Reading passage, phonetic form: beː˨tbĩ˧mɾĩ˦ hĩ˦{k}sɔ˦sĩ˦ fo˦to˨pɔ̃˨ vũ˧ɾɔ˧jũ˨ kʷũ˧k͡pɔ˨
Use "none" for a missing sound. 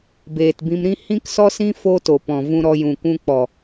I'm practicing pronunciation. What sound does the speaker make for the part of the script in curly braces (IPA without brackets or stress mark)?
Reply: k